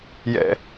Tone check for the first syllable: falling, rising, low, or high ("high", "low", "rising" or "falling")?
low